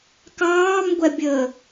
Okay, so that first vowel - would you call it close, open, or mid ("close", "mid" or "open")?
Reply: open